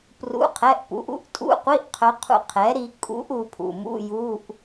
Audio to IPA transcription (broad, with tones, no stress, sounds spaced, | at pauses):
p r ṵ˧˥˧ qʰ ɛ˧˥˧ ʔ p ṵ˩˥ ʔ ṵ˧˥ ʔ tʼ ṵ˧˥˧ qʷ i˧˥˧ ʔ qʰ œ˧˥ qʰ ṵ˧ qʰ ɛ˩˥ ɾ i˧ kʼ ṵ˧˥ ʔ u˧ pʰ ṵ˩˧˩ m ṵ˧˥˧ j u˧˥˧ ʔ